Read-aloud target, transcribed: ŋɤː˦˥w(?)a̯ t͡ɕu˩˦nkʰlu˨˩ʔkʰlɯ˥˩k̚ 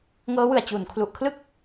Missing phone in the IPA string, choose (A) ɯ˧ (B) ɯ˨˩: B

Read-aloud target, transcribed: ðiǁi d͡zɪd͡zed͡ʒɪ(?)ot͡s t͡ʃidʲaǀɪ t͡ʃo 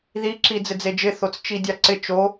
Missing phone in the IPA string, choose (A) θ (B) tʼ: A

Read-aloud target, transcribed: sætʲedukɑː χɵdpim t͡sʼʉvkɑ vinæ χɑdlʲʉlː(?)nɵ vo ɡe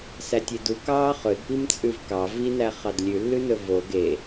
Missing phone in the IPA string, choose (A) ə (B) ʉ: B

